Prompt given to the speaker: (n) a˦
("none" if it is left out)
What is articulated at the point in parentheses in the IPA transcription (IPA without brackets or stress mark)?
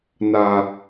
n